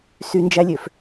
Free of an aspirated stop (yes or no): yes